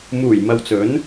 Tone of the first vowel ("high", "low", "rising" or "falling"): low